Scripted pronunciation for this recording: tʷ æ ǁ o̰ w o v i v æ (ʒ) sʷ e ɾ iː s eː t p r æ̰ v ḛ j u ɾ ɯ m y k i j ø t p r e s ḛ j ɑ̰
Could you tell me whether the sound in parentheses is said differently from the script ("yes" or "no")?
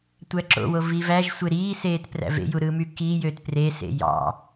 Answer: no